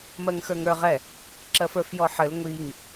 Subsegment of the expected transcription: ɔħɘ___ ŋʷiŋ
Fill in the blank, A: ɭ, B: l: B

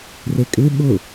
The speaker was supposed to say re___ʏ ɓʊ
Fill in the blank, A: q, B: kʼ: B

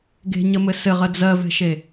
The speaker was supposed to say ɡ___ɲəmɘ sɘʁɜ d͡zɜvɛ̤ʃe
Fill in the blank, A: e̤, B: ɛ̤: A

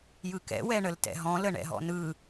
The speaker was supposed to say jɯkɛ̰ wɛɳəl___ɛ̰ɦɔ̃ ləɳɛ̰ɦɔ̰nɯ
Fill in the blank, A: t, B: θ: A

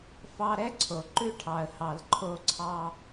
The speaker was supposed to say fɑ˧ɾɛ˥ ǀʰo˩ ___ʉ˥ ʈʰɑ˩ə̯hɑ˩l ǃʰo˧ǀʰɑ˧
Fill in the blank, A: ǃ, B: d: A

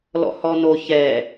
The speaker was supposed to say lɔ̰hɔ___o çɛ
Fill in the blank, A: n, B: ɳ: A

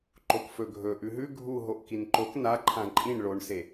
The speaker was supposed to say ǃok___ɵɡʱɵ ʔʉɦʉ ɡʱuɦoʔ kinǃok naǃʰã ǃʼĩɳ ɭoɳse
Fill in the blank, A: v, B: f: B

